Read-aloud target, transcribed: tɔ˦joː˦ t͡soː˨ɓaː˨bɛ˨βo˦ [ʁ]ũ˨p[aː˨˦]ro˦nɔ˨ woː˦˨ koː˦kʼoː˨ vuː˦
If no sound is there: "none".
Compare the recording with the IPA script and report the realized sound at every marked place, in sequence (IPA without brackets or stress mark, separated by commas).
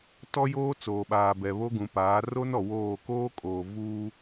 ɡ, aː˨˦